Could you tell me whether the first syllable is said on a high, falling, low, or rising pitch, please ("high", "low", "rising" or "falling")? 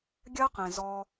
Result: high